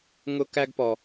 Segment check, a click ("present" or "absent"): absent